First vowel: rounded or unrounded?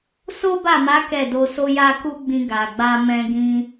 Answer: rounded